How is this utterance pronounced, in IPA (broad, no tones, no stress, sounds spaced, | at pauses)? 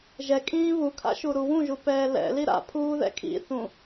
ʒ ɛ kʼ ĩː β u kʰ a̰ ʃ u ɾ u w ũ ʒ u p ɛː l ɛ̰ l i ɾ a̰ pʰ uː ð ɛ̰ kʰ ḭ θ ũ